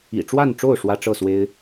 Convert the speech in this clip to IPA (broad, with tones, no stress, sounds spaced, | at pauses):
ḭ˨˩ ʈ͡ʂ w a˥˨ n ʈ͡ʂ o˥˨ ʊ̯ ʂ w ä˦ ʈ͡ʂ ɤ˥˨ s w e˦ ɪ̯